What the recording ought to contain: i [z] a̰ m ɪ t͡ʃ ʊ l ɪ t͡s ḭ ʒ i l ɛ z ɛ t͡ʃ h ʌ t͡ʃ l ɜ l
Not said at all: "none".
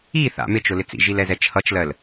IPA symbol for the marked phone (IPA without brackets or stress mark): θ